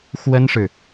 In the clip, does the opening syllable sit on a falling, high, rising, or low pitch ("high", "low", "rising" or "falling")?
high